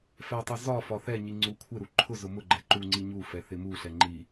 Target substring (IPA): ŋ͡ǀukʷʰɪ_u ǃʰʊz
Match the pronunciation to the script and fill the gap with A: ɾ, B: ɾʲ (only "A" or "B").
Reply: A